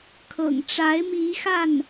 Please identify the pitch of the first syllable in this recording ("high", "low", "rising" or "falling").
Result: low